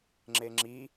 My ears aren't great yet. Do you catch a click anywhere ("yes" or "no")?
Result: yes